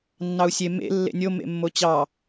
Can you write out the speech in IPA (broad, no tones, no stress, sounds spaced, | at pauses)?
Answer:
nː ɑ u̯ sʲ e m ḛ lː ḛ nʲ o m ḛ mː o t͡ɕ ɑ